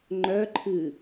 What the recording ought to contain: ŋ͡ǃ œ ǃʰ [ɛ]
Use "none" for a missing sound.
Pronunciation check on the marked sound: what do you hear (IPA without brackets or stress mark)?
ɨ